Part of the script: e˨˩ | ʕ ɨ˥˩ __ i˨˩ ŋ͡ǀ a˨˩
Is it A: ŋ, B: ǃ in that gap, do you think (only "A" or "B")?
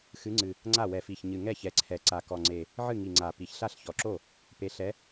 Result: A